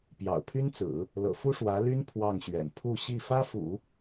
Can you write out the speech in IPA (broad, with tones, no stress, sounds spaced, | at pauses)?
p j ɑ̰˨˩ ʊ̯ pʰ y˥ n t͡s ɹ̩˨˩˦ | l ɤ̰˨˩ f u˥ ʂ w ä˧˥ l y˥ n pʰ w ɑ˥˩ ŋ ɕ ɥ ɛ̰˨˩ n pʰ u˥˧ ɕ i˥˩ f ä˥ f ṵ˨˩˦